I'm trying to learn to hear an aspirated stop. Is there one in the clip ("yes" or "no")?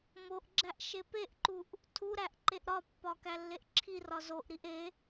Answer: yes